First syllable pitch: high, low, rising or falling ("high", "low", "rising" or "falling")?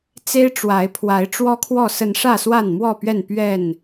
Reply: high